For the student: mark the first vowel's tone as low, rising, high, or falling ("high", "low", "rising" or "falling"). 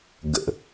low